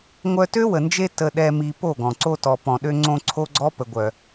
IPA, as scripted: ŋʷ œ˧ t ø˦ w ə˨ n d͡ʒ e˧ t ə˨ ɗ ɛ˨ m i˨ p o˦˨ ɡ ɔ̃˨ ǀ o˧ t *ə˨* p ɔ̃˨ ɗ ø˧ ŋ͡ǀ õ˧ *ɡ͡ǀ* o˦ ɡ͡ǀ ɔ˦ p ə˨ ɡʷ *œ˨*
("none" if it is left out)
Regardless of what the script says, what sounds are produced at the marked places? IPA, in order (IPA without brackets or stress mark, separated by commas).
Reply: ɔ˨, ǀʰ, œ˨